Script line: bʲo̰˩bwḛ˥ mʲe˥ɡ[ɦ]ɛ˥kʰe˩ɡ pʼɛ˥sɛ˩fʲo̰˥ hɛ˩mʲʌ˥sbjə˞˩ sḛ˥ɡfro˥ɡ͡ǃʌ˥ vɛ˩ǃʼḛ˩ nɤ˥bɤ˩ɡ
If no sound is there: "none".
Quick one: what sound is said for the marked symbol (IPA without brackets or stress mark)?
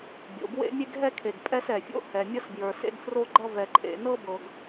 ɦ